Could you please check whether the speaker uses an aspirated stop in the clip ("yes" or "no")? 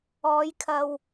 yes